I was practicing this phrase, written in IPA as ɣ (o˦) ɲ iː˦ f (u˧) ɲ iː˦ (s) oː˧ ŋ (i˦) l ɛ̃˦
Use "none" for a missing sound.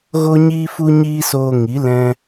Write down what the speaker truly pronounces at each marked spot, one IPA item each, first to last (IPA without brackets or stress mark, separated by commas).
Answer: o˦, u˦, s, i˨˦